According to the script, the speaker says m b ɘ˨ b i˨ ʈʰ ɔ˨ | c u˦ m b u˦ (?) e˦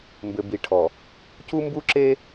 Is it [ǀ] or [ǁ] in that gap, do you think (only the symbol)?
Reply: ǁ